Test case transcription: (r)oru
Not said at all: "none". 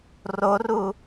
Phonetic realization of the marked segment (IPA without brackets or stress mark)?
r